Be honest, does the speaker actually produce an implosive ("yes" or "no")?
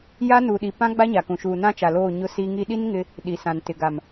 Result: yes